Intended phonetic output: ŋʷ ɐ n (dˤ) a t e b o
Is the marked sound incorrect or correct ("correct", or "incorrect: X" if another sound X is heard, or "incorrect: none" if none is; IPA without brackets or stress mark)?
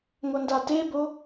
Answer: incorrect: d